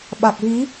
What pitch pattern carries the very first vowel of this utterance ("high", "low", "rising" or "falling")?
low